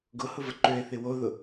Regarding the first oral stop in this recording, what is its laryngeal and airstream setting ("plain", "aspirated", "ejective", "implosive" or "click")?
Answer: plain